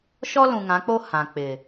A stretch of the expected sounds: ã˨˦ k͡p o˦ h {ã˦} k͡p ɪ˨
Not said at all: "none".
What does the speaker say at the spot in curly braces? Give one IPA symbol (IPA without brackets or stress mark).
ã˨